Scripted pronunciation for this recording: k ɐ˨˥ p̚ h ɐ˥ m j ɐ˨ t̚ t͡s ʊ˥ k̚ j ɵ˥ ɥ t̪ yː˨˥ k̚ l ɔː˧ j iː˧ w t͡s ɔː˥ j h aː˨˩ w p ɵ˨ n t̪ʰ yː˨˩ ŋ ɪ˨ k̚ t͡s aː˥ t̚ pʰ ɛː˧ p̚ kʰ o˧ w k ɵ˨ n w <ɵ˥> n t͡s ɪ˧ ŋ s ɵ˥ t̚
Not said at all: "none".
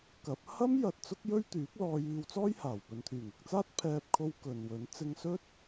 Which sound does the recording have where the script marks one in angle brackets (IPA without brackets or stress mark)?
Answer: ɵ˨˥